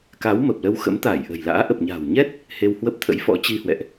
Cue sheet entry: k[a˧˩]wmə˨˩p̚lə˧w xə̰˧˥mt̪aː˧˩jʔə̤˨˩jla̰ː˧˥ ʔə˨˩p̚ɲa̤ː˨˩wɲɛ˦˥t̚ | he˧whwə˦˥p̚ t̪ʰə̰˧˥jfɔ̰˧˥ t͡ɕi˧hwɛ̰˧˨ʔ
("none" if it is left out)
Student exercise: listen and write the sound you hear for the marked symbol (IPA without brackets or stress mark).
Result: a˨˦